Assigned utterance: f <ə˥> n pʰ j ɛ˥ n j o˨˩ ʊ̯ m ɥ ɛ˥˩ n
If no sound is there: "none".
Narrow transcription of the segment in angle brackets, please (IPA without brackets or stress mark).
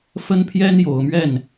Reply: ə˥